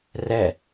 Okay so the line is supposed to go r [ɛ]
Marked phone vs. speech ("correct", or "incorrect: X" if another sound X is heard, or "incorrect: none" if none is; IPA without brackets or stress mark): correct